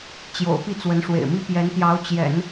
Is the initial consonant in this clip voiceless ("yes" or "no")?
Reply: yes